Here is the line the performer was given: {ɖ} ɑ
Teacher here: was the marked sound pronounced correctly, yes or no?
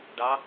yes